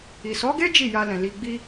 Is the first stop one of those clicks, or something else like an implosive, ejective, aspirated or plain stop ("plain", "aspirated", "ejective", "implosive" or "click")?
plain